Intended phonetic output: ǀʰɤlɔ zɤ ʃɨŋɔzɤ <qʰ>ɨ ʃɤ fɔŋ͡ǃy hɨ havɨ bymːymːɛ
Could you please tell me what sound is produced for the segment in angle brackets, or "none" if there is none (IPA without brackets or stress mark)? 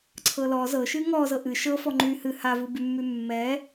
ʔ